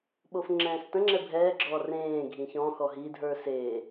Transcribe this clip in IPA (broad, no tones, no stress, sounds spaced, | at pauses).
ɓ o f ŋ͡ǁ ɛ̃ː s t ə̃ ŋ͡ǁ ɛ bʱ ɛː ɡ͡ǁ ɔː r ẽː ɡʱ ĩ ç ɔ̃ x ɔ ɦ i dʱ ə˞ s e